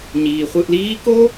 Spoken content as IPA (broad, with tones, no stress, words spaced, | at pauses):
ɲiː˩χʷɯ˨ʔliː˦ko˥